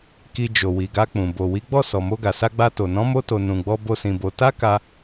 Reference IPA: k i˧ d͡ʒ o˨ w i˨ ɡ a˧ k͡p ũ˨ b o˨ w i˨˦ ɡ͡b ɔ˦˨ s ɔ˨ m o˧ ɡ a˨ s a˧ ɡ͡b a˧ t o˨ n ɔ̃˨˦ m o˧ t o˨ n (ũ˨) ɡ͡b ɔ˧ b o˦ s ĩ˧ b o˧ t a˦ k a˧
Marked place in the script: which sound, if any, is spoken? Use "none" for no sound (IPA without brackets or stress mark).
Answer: ũ˨